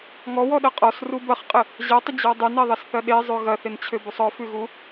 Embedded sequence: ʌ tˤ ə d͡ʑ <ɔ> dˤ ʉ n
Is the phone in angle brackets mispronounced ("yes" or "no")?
no